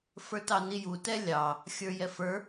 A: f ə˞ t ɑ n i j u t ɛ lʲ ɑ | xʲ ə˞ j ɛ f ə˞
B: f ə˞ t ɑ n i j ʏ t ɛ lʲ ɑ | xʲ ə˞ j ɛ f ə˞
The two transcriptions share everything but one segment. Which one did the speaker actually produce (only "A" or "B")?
A